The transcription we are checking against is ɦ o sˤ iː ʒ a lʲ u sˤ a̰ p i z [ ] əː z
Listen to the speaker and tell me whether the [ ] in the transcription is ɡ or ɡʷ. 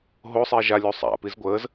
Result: ɡʷ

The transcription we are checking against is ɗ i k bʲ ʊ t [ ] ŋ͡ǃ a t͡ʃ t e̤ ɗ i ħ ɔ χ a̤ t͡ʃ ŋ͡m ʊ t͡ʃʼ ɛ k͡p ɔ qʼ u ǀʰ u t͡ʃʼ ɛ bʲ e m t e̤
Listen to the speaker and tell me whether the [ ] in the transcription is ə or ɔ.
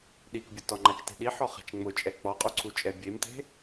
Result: ɔ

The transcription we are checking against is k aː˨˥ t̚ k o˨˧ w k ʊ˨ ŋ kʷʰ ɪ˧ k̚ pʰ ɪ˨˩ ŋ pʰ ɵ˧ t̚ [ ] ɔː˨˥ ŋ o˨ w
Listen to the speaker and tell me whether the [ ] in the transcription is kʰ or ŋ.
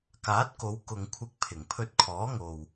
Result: kʰ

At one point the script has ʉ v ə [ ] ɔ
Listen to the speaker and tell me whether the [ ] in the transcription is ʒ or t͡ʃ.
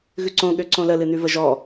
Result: ʒ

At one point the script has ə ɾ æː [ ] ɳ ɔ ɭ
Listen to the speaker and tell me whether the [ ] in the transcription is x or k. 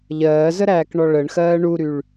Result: k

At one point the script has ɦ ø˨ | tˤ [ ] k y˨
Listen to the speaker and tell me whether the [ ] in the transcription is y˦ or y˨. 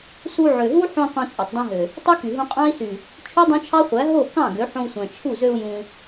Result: y˦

